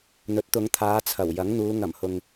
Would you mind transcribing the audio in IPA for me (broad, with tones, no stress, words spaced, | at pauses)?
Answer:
n̪ɵ˨˥t̚t̪ʊ˨˧ŋt̪ʰaː˨˧ t͡sʰɐ˨˩wjɐ˨˥ŋ n̪uː˨˧ ŋɐ˨˩mhʊ˨ŋ